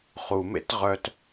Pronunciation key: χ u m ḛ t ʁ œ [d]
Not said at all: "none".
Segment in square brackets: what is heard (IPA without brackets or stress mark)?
t